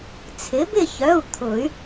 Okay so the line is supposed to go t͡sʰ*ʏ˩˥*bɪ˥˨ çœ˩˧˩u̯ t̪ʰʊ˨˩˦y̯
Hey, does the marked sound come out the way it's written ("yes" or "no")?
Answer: no